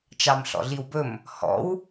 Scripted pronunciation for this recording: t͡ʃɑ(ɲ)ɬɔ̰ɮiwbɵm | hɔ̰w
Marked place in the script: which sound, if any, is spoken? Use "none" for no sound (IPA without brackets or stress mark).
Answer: m